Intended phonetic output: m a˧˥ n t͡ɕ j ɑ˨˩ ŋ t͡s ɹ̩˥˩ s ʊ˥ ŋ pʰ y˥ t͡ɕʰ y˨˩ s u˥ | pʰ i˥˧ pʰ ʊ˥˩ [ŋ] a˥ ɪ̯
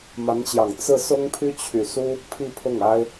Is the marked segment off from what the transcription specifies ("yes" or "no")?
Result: no